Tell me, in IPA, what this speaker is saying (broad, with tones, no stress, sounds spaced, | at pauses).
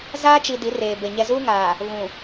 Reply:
z aː˦ t͡ʃ i˨ d i˨˦ r eː˨ b e˨ ɲ ɛ˨ z uː˦ ŋ aː˨ | β ũ˨